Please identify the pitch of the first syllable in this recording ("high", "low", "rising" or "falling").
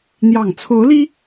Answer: low